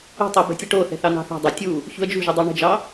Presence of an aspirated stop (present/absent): absent